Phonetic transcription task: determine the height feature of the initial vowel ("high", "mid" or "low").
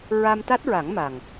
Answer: low